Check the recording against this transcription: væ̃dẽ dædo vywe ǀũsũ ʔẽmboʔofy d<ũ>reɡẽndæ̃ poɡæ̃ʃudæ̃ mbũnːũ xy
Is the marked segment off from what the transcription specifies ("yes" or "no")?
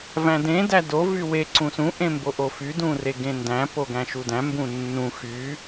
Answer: no